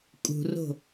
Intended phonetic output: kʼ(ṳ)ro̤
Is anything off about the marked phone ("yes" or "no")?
no